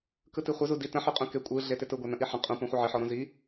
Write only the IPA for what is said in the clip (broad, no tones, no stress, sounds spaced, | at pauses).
k ɯ t i χʷ ə z u d i t ə̃ ħ y qʼ ũ k e kʷʼ ɯ ɮ e t ɪ t ɯ ɡʷ a n ə̃ ʔ i ħ ə̃ qʼ ũ p ũ χʷ ə ʕ ɪ ħ ɔ ɾ ũ z i